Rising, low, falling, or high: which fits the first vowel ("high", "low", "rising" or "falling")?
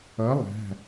rising